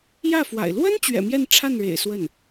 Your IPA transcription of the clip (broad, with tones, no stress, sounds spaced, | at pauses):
j ä˥˩ f w a̰˨˩ ɪ̯ l w ə˥ n t͡ɕ ɥ ɛ̰˨˩ m j ɛ˥˧ n ʈ͡ʂʰ a˥˩ n ɻ ḛ˨˩ ɪ̯ s w ə˥˩ n